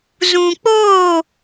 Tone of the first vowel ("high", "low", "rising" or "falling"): low